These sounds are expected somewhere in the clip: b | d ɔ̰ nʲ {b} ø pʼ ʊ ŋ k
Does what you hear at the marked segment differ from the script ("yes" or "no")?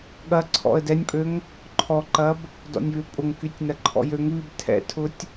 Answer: yes